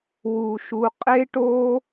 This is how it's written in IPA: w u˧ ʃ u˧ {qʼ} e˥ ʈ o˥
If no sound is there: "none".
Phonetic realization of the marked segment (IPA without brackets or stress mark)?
qʼ